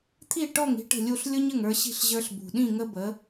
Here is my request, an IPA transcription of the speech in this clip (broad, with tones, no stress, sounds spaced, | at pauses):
t̪ʰ i˥˩ ʈ ɔ˥˩ ŋ i̤˥ ʈ ə̤˥˩ lʲ u˥˩ ɬ lʲ ʊ˥ ɲ ə˥˩ ŋ ə˞˧ ɕ i̤˥˩ ɬ ʑ ə˞˧ ɬ b ṳ˩ ɗ ĩ˥˩ ŋ ə˥ b ə˩˥